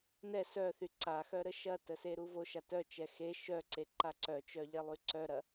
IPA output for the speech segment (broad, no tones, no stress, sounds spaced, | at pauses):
n ɛ s œ θ y ǀ a x œ ɾ ə ʃ ɐ t ə s e ɾ u v o ʃ a t œ t͡ʃ ɛ x e ʃ œ ǀ e ǃ a ǀ œ t͡ʃ œ ʎ ɛ lˠ y ǀ œ ɾ ɐ